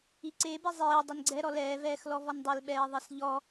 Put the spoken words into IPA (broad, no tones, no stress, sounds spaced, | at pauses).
i ǀ e b e zˤ eː dˤ e n ɡ͡ǀ ɛ ɾ ɔ l ɛː v ɛː x l ɔ v ɔ n dˤ ɪ l ɓ ɛː ðˤ i s ʎ ɔ